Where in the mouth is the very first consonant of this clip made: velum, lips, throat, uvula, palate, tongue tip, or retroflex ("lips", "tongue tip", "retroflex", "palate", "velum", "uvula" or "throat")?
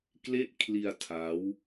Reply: velum